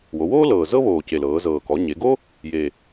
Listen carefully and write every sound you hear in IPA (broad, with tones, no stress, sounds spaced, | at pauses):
w o˩˧ w oː˥ l ɤː˨˩ z ɤ˥ β oː˨˩ c e˨˩ l ɤː˩˧ z ɤː˨˩ k ɔ˩˧ ɲ e˩˧ ɡ o˥ | j e˨˩